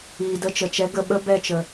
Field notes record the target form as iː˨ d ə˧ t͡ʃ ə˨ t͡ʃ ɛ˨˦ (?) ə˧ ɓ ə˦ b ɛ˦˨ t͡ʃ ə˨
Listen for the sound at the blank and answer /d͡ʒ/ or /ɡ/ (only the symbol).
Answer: ɡ